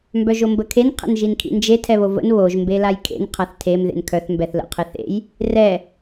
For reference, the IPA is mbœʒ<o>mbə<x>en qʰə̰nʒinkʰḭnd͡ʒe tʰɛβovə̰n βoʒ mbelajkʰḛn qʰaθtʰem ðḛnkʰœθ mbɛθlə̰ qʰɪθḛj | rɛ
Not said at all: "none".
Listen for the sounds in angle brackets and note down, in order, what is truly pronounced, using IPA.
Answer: o, kʰ

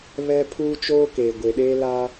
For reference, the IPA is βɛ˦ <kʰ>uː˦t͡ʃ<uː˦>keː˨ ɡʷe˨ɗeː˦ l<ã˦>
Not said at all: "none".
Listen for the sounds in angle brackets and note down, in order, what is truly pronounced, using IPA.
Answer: pʰ, oː˦, a˦

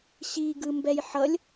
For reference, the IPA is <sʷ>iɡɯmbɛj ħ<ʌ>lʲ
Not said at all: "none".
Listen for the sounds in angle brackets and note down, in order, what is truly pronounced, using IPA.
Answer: ɕ, ʌ

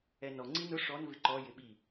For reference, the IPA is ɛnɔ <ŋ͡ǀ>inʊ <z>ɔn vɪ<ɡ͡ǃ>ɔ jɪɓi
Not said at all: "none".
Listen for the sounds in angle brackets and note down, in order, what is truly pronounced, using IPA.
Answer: ŋ͡ǀ, ʂ, ǃ

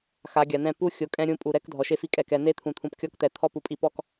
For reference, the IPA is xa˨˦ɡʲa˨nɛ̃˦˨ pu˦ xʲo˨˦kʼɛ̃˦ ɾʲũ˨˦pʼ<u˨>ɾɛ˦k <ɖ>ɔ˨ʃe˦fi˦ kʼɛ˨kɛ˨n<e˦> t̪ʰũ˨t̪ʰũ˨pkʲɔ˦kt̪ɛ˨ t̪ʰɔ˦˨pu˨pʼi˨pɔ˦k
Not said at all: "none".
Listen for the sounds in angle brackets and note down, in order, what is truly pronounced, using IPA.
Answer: u˨, dʱ, e˦

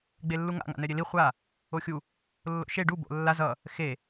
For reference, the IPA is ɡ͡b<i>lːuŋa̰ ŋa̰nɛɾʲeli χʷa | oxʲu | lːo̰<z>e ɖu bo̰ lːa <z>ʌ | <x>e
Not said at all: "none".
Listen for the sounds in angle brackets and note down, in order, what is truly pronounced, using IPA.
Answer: e, ʃ, z, x

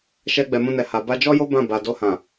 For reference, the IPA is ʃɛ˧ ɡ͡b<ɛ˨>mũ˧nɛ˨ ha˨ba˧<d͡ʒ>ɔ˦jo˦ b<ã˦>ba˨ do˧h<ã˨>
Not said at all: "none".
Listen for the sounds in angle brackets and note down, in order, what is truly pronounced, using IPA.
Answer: ɛ˨, d͡ʒ, ã˦˨, ã˨

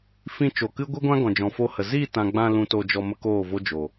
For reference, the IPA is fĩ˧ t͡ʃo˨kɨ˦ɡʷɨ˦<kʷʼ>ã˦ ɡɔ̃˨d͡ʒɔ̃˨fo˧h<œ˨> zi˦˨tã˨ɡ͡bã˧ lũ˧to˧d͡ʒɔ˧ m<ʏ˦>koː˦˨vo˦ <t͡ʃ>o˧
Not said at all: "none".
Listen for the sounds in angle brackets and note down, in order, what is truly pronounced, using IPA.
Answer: ɡʷ, ə˨, ə˦, d͡ʒ

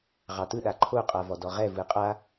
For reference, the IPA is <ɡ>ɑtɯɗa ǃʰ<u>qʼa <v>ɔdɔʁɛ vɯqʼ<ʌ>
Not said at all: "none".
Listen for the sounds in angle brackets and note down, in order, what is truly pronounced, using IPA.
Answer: ʁ, o, v, a

